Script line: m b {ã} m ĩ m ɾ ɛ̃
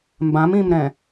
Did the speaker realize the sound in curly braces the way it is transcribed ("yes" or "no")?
yes